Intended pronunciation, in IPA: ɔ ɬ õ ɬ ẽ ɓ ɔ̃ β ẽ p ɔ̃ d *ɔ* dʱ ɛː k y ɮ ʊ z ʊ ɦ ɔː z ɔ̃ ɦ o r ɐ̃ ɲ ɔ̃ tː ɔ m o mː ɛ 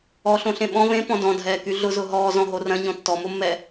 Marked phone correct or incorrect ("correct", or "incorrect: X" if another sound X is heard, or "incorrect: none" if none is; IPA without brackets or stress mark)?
incorrect: ɔ̃